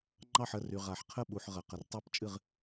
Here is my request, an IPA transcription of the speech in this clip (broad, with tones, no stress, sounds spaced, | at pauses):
ŋ͡ǃ ɑ˥˨ ħ ə˥˨ r y˨ ʁ a˨ ħ qʰ ə˥˨ ɓ u˨ ħ ʁ ə˨ q ə˨ r tˤ a˥˨ p t͡ʃʼ ɨ˥˨ ʁ